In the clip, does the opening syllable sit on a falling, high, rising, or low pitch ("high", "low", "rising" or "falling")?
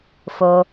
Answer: low